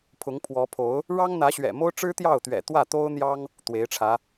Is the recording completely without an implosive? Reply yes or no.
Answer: yes